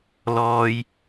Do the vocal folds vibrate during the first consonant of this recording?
yes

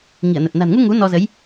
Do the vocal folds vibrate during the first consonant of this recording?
yes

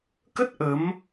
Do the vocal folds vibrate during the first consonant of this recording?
no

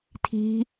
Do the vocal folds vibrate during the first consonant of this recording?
no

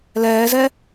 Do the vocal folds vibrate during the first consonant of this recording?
yes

